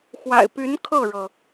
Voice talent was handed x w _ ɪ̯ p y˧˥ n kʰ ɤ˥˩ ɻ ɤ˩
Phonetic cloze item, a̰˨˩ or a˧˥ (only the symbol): a̰˨˩